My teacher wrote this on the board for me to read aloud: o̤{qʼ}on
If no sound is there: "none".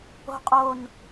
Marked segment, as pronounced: qʼ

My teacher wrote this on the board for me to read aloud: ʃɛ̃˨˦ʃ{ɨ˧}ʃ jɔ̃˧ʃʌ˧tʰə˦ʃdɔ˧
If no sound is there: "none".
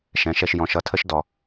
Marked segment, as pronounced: ɛ˧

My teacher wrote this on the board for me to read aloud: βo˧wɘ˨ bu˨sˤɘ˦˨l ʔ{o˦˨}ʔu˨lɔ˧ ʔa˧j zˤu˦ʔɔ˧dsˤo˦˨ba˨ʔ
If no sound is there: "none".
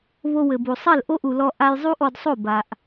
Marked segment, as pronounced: o˦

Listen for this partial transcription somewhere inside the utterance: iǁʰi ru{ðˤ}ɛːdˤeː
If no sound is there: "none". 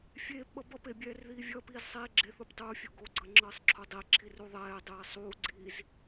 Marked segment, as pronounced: ðˤ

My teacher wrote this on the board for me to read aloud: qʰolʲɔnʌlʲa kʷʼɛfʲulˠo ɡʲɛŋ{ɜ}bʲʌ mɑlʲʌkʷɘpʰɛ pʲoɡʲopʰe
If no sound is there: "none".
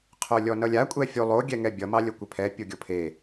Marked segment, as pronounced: ɛ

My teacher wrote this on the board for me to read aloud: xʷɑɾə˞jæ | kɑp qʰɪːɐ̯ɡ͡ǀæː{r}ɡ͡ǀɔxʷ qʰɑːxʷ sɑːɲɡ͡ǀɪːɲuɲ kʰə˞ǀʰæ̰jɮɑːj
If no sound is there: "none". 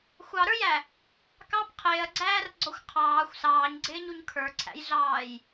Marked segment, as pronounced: r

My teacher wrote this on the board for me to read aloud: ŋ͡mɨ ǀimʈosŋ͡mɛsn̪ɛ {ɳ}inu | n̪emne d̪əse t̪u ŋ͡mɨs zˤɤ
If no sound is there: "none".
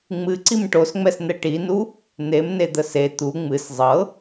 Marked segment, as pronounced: ʈ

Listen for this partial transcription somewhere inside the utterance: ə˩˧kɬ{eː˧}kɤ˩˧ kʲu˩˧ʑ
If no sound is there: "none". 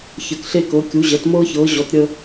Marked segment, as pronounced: e˧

